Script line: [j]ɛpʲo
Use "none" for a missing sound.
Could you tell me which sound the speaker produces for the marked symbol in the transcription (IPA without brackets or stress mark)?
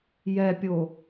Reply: j